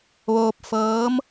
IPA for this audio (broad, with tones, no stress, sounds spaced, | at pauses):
ʋ oː˧ p̚ f ɤː˧˥ m